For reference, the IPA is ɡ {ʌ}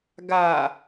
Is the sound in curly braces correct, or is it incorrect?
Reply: incorrect: a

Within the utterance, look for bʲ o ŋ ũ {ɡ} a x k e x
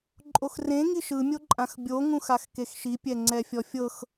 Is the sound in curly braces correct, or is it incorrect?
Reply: incorrect: x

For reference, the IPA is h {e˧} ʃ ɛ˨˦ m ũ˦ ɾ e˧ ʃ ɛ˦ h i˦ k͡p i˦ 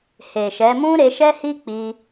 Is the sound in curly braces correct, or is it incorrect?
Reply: incorrect: e˨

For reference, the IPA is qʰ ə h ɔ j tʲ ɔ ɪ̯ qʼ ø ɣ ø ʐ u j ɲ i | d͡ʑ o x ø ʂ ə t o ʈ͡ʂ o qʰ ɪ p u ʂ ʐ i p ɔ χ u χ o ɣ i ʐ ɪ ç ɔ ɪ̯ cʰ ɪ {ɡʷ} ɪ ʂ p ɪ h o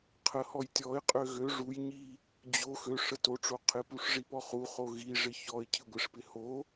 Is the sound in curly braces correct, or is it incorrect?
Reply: correct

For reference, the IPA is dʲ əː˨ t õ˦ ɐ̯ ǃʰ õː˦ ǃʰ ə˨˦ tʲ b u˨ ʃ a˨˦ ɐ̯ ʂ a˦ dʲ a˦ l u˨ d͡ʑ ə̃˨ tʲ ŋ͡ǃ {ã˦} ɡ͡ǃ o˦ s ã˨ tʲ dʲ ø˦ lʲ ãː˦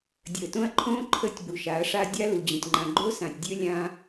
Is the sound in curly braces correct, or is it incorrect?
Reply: incorrect: ã˨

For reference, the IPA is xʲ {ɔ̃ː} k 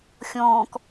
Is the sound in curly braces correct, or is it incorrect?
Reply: correct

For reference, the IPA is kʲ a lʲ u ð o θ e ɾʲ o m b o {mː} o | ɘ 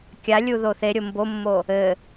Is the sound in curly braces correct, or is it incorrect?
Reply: correct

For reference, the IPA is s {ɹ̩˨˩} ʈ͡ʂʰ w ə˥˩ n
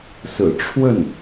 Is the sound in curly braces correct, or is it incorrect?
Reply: correct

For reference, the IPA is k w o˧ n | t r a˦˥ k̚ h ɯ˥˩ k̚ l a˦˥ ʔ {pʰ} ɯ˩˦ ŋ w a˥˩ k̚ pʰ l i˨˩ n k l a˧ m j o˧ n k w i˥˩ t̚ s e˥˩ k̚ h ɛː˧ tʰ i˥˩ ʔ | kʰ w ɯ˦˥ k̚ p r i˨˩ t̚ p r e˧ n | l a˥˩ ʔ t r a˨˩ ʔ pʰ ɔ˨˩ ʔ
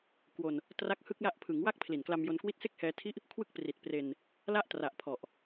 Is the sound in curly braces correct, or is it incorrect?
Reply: correct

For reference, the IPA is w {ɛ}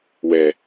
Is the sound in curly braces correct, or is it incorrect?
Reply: correct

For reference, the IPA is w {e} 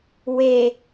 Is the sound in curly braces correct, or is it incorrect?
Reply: correct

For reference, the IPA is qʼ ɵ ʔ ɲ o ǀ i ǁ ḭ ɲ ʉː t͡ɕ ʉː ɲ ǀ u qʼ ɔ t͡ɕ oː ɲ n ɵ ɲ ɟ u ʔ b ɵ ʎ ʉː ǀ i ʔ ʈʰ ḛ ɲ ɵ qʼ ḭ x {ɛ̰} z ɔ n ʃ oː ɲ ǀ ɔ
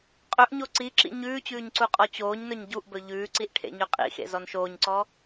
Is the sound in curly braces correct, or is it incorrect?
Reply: incorrect: ḛ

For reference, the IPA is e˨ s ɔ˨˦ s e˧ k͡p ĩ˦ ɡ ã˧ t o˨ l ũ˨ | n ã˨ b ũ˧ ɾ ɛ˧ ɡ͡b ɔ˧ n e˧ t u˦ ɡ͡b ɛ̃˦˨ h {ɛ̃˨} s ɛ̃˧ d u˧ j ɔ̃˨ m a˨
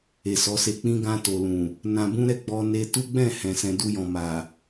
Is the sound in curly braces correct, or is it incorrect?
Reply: correct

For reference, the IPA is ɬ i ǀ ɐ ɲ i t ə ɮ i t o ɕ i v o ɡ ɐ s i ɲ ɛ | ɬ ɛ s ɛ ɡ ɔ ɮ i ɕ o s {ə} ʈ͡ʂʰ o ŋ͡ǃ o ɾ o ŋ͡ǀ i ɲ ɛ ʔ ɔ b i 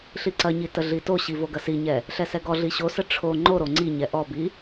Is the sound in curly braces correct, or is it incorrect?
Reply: correct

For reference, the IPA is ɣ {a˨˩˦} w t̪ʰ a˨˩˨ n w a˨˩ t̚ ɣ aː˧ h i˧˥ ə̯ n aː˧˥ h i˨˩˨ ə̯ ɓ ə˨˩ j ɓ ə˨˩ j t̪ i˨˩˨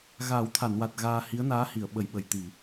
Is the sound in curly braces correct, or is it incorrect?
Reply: incorrect: aː˨˩˦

